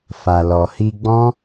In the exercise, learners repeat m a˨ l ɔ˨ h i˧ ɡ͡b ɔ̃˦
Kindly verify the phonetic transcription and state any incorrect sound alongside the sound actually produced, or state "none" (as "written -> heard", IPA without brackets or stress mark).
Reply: m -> f